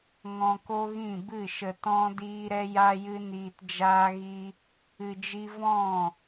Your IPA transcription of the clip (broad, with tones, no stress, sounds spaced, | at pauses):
ŋ ɔ̃˧ k o˦ ɣ ĩ˦˨ b ɨ˦˨ ʃ ə˧ t ɔ̃˦ d iː˦ ɾ ɛ˦ j a˦ j ɨ˦ n iː˧ t d͡ʒ aː˦ ɣ i˦ | ɨ˧ d͡ʒ i˦ v ɔ̃˦˨